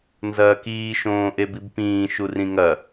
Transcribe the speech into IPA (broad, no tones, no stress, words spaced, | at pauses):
nzɐːkiː ʃõːʔebibpĩː ʃurĩŋɐ